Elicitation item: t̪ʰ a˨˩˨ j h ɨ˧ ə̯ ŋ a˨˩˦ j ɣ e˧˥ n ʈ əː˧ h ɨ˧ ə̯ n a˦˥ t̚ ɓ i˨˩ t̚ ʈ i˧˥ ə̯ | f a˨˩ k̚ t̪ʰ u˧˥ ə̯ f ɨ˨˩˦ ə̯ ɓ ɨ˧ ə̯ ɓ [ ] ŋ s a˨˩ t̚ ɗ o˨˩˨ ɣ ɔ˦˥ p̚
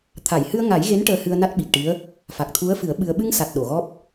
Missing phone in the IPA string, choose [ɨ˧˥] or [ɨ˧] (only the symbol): ɨ˧